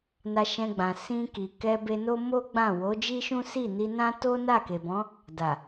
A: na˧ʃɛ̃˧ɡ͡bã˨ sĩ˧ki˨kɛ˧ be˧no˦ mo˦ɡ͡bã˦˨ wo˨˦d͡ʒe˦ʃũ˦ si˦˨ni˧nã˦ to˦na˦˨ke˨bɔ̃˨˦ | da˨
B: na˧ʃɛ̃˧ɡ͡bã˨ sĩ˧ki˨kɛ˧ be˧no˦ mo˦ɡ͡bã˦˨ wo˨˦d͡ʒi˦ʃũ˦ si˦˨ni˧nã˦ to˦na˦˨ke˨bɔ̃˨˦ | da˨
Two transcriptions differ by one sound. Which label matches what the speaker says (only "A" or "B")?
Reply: B